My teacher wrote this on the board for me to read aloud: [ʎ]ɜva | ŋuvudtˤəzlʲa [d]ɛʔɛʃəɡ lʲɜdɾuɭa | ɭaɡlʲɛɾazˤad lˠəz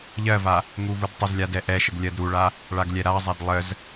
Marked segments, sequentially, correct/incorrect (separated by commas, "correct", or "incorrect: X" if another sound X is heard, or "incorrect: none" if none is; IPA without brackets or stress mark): correct, correct